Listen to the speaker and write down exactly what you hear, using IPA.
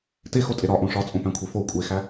texotʼe ɾɒʔõ ʂɒt͡sʼõpæ̃kʷʰe fo kʷʼexæ

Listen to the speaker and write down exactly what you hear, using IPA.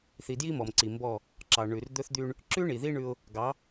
θi˨dji˦mɔ˨mǀi˨ mbɔ˦˨ | ǁɑ˨ ɳʉ˨r d̪ɵ˦θd̪y˦ɳ | ǁʉ˦ɳi˨ði˦ ɳʉ˦ʊ̯ | ɡɑ˨˦

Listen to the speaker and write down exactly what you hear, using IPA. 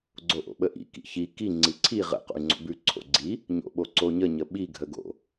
ɡ͡ǀoʔo̰ɓəʔḭ kḭçi ki ŋ͡ǀiǀʰi ʁə̰ qo̰y̯ŋ͡ǀo̰bʉ ǀʰo̰ɡ͡ǀi | ɲo̰ɓoǀoɲə ɲəɓi ɡʱəɡo̰

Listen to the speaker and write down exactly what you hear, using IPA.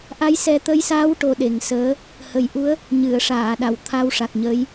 ʔa˧˥jsɛ˧t̪ə˧˥jsaː˧˥w ʈo˧ ɗe˨˩ŋsəː˧˥ | hə˨˩jʔu˧˥ə̯ | ɲɨ˨˩˨ə̯ʂaː˨˩˨ɗa˨˩˨w t̪ʰa˧wʂa˨˩k̚ɲə˧˥j

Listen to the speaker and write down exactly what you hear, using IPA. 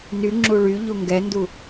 nyŋ͡ǁu ɭyʎu ŋɡɛndu

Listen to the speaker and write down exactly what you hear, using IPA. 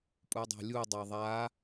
pʼudˤæ̤lʲu dˤæðˤa

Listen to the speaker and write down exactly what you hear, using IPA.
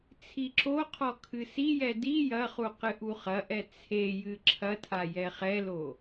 t͡sʰiǁoqʰɔ kʰɨsijɛ di jɐχu qɨʔuχɐʔɛ t͡sʰejɨ ǁʰɐtʰa jɛχɛlo

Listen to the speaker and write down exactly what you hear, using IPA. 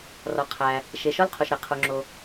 rɒ˩ qʰæ˩ | ʃe˩ ʃɒ˥lqʰo˩ʃɾæ˩ qʰo˩ŋ͡ǁo˩

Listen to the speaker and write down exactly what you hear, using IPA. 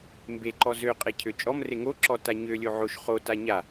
mbeǃɔ zøqʼecʰø t͡ʃʼɔmre ŋoǁɔta ɲølʲo ʕoʃ χota ɲa

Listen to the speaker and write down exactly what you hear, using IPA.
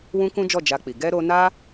wũ˦kũ˦d͡ʒɔ˦˨ d͡ʒa˧k͡pi˨ ɡɛ˧ɾo˧na˦

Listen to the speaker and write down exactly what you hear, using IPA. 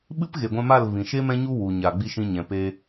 ɓɨ˦pɣe˨ɡʷɛ̃˧ ma˦˨lvĩ˨ʃe˦ mɛ̃˦ɲu˦ wu˨ɲa˨ ɡ͡bi˧ʃĩ˧ ɲɛ̃˨pe˧

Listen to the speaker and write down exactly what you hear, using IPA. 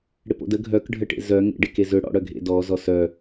ɽɪpo̰də ɡʱœkɖʱəʈḛ zœŋḛ ɖɪkezʏ ɽɔ̰ɽœɡʱḛ dɔzɔ sœ

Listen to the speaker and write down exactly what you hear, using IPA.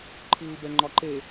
ǃʰɨːbɛŋ͡ǃɒǃe

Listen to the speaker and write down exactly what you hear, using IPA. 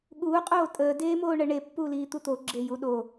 ɠuː qʼoːtʼəː deːmoːɳəɳe pːuːliːt̪ut̪o ɡ͡ǁejuɗo

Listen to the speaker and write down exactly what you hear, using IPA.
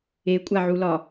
ekʷʼaʕulɒ

